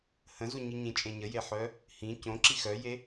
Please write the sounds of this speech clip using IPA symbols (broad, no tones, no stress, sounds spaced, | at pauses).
h ə̃ z u ɲ i ɲ ĩ t͡ʃʼ ẽ ɲ ə j e ħ œ | h ĩ c õ ǁ i x œ j e